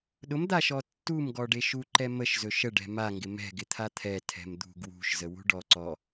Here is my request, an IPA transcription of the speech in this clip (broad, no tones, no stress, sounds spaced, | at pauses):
ɗ ʊ m d̪ a ʃ ɔ tː u m ɡ ɔ ɖ e ʃ u ǃ ɛ m ə ʃ z ɵ ʃ ə ɖ ɛ̤ m a ŋ ɡ ɪ m ɛ̤ ɡ ɪ t̪ʰ a t̪ʰ ɛ tʰ ɛ̤ m d̪ ṳ ɡ w ṳ ʃ z ə w ṳ ɖ ɔ ǀ ɔ